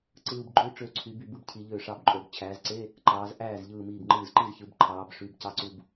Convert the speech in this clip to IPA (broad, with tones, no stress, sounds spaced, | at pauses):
ǀ ɯː˧ b ɡ͡ǃ ø˧˥˧ ʈ͡ʂ ø˧˩ ǀʰ y˩˧ b y˧˩ b ɯ˥˩ b cʰ i˩˧ ʎ ø˧˩ ʂ ɑ˧ b ǃʼ o˩˧ b t͡ɕʰ æː˩˧ z ǀ e˧˥˧ | ǃ ɑː˩˧ z ʔ æː˥˩ z ʎ ɯː˧˩ m iː˧˩ b ŋ͡ǃ ɯː˧˩ z ǃ i˥˩ z ç ɯ˩˧ b ǃʰ ɑː˩˧ b ʂ y˩˧ b c ɑ˧˥˧ ǀ u˧ b